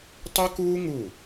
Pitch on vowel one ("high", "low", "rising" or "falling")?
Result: high